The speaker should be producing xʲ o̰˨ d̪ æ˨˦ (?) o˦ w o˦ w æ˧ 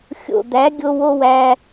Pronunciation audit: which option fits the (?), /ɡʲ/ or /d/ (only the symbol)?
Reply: ɡʲ